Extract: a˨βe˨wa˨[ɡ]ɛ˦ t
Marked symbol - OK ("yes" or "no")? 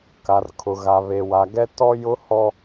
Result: yes